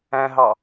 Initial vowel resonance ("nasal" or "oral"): nasal